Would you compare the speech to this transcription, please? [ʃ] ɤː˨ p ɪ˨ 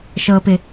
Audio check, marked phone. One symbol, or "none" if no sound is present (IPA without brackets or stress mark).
ʃ